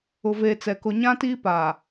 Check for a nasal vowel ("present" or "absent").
present